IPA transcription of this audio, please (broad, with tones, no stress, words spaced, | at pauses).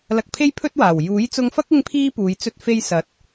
lɐ˧k̚pʰe˥j pʰɵ˥t̚waː˨˩w juː˨˥jt͡sʊ˧ŋfɐ˥k̚ ɪ˥ŋpʰiː˥puː˨˧j t͡sɵ˧t̚fe˧j sɐ˨˥t̚